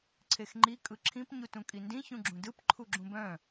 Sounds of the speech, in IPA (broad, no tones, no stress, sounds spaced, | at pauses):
ǀʰ e x ŋ͡ǃ i kʼ ɯ ǁʰ ĩ p ɲ u t ũ kʼ i n d ĩ ç ũ ɡ͡ǁ ũ d ɯ p ǃʰ u ɡ͡ǁ ũ b œ̃